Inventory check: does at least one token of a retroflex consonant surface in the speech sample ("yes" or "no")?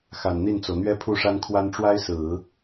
yes